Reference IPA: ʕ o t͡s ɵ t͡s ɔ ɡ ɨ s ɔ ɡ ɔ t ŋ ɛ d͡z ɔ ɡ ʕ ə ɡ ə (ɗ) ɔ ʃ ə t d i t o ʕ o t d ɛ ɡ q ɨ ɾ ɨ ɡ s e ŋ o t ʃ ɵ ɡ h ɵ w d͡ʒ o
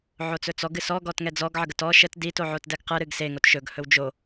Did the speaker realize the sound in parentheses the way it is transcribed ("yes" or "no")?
no